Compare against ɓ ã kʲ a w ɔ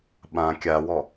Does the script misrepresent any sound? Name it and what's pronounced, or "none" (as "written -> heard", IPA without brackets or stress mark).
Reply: none